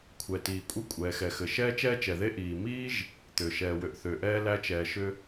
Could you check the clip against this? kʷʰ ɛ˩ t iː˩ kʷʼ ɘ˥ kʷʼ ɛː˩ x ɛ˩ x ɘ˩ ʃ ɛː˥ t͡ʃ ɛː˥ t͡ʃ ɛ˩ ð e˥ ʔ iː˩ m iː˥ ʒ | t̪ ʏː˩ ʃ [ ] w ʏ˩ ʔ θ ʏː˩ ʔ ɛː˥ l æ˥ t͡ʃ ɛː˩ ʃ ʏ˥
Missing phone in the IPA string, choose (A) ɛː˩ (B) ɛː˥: A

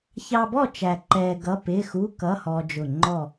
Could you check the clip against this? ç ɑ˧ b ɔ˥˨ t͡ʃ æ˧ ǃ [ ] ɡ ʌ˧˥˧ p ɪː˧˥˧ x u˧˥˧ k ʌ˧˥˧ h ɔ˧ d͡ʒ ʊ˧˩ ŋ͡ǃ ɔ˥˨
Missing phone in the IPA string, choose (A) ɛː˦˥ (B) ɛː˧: B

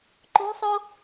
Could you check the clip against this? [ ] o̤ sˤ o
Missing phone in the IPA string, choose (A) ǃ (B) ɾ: A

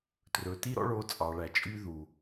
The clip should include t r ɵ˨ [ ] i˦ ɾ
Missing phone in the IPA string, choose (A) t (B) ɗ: A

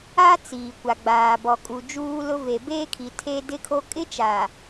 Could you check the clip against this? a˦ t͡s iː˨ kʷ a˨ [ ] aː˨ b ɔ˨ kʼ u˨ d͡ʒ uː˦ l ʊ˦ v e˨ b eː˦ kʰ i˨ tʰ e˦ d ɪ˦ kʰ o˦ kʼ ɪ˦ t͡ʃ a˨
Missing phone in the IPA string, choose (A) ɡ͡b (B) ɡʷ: A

